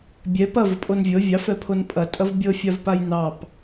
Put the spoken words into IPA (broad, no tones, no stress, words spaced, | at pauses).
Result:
bʲɛ pɐvəpʼon vʲɤ vʲɑfɛpʰon pʼɐtʼɐv bʲɤfʲavpaj nɑp